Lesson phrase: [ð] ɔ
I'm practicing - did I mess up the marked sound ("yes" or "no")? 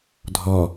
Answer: yes